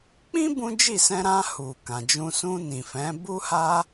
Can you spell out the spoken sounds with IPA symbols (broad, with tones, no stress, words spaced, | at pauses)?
k͡pĩ˦ bũ˦d͡ʒi˦˨ sɛ̃˧ɾã˧ hu˨ kã˨d͡ʒũ˧ sũ˧ nĩ˨fɛ̃˨˦ bu˦ha˦